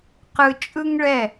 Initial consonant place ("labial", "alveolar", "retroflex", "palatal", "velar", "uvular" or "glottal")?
uvular